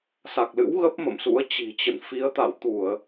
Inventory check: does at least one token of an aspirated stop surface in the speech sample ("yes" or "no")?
no